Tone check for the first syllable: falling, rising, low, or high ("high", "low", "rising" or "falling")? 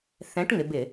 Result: rising